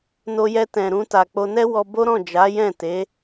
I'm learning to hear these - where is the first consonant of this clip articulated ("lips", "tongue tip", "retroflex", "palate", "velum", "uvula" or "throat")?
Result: tongue tip